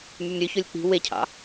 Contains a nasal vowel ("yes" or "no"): no